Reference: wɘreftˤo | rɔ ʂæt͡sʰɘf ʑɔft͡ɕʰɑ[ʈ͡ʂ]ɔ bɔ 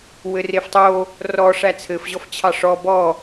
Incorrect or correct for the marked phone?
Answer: incorrect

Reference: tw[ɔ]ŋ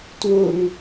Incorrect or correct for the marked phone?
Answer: incorrect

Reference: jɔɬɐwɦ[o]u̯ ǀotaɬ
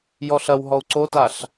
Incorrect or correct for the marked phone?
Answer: incorrect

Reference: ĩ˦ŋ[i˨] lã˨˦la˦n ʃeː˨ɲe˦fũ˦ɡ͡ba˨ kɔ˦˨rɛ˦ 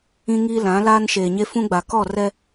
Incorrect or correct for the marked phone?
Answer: incorrect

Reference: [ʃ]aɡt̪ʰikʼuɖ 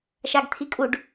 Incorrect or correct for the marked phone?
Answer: correct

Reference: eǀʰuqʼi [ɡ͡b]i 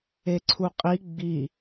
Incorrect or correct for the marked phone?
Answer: correct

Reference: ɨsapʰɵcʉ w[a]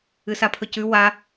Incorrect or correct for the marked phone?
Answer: correct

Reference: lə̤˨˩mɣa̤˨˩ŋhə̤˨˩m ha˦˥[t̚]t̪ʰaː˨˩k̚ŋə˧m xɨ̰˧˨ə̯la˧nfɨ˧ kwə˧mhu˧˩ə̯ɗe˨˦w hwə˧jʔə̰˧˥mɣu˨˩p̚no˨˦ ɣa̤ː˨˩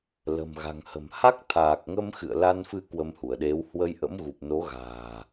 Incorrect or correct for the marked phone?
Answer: incorrect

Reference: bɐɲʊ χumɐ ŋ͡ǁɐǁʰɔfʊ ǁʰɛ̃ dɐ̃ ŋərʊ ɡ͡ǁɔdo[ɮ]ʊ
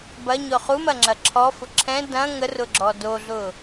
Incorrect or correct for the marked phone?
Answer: correct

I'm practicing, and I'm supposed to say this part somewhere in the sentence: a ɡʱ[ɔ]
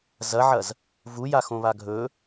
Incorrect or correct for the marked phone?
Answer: incorrect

